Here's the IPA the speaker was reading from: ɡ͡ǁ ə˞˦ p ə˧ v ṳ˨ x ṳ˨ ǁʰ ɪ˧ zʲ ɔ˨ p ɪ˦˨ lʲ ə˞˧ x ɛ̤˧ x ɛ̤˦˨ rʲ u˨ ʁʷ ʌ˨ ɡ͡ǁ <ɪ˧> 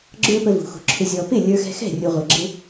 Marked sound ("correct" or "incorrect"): correct